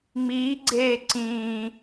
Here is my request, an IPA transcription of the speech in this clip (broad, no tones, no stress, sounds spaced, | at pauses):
ŋ͡m iː ɡ͡ǀ eː ǀ ĩː